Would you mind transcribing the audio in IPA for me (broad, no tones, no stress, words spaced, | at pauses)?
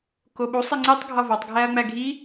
koɓu sˤiŋ͡ǀitˤ ɡʱɒvɒtˤ ɡʱæɐ̯ŋ͡mæɡʱi